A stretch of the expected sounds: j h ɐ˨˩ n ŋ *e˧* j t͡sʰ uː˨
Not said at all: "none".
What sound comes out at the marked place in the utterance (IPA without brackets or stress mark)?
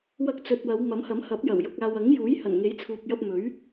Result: e˨˥